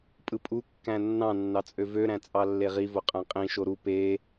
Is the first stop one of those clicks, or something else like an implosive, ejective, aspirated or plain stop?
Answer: ejective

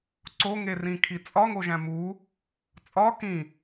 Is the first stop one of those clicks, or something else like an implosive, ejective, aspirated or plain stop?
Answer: click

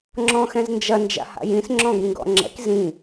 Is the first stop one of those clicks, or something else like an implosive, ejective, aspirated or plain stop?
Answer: click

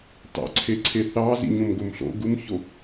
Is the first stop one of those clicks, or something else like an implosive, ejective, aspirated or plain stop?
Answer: plain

